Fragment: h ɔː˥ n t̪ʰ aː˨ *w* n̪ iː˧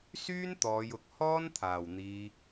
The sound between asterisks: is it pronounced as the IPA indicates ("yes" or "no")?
yes